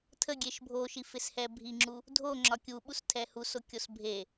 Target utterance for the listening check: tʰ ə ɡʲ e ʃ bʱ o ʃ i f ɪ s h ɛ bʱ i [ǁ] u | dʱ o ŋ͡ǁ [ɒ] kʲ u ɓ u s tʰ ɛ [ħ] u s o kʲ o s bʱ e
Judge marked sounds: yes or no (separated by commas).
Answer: no, yes, no